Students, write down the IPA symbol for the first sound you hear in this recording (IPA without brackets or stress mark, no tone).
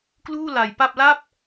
k